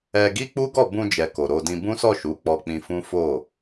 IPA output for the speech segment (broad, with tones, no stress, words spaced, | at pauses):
ɛ˧ ɡi˦ k͡pu˦ɡɔ˦˨ bũ˧d͡ʒɛ˨ ko˨ɾo˧dĩ˧ bũ˦sɔ˦˨ʃu˨˦ k͡pɔ˧k͡pĩ˧fũ˦ fo˦˨